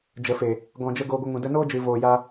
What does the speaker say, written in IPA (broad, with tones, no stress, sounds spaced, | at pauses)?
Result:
d͡ʒ ə˨ f e˨ | ɡ ɔ̃˨ d͡ʒ ə˧ ɡ oː˧ ɡʷ ə˧ ŋ ũ˨ d ə˧ n oː˦ d͡ʒ ɨ˨ v oː˨ j a˧